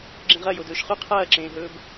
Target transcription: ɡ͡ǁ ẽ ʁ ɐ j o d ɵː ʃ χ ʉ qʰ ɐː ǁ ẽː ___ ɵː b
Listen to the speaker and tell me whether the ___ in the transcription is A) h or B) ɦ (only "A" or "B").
B